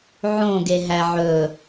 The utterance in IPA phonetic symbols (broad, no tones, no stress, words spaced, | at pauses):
ʕõɡe ɦæʕɵ